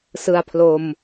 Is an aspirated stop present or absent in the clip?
present